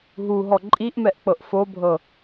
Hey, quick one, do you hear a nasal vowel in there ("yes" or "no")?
no